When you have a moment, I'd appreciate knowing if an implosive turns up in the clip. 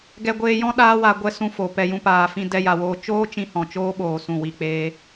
yes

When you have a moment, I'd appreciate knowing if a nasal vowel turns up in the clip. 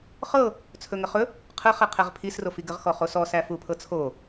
no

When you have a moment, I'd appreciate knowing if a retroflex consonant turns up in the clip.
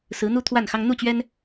no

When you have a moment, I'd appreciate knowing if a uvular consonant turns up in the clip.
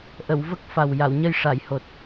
no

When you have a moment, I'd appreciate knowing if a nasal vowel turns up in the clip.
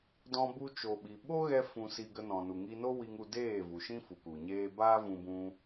yes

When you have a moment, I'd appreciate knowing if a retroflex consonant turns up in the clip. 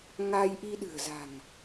no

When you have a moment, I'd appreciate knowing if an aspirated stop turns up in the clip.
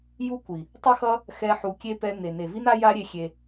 no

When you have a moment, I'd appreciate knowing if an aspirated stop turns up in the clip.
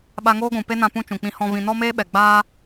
no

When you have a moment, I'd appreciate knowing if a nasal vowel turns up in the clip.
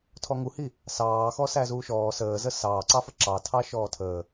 no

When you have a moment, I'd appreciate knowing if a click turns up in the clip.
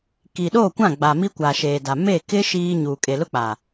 no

